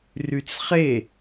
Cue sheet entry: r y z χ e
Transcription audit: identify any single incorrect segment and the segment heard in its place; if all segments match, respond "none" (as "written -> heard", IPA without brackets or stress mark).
z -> t͡s